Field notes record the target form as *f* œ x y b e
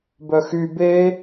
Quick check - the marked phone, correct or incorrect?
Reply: incorrect